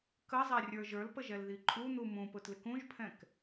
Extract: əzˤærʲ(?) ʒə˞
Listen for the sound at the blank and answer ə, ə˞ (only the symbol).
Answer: ə˞